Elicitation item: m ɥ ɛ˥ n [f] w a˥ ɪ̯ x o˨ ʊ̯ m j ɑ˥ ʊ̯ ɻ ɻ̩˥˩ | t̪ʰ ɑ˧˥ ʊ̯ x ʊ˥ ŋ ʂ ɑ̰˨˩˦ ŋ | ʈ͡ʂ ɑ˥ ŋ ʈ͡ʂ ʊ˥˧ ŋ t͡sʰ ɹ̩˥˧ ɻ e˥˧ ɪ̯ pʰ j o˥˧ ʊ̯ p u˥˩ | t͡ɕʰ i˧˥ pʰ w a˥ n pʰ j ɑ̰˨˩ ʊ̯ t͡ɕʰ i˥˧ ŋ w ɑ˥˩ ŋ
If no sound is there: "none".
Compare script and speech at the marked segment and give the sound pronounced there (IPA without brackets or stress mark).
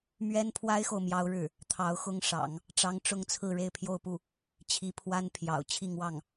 pʰ